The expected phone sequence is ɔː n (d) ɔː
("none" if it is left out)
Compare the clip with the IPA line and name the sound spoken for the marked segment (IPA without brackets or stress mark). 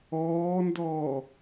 d